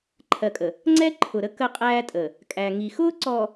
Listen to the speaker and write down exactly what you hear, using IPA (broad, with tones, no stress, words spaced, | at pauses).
ǃʰɜ˨kʼə˨ | ŋ͡ǀɛ˦ ǃʰʊ˨ɾə˦ kə˦qʼæː˦tʼə˨ | kʼæ˨ŋi˨ xʊː˦ǀɔ˨